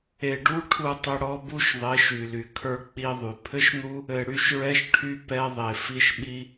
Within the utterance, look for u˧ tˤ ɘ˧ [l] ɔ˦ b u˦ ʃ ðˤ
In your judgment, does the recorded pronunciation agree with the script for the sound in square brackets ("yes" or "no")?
no